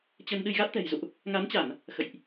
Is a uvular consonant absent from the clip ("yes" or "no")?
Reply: yes